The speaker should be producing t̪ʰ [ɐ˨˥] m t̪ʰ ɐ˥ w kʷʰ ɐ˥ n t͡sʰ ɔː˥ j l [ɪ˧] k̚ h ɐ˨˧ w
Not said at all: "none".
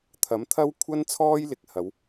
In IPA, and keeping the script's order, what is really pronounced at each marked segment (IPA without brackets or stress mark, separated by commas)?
ɐ˨˥, ɪ˨˥